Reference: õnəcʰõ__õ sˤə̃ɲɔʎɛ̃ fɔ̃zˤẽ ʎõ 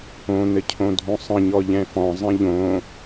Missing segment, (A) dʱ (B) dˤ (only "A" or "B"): A